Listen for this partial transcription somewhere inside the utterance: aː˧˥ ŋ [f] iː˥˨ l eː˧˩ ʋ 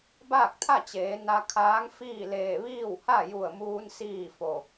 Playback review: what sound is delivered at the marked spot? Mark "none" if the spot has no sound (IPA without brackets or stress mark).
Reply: f